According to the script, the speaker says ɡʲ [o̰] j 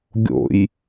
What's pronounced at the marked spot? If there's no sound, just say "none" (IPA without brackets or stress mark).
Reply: o̰